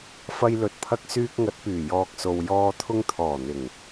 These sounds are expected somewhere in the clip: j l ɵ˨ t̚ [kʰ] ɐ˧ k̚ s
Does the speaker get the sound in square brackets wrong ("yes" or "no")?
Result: yes